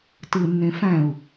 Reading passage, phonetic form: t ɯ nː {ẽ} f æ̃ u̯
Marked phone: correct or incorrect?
correct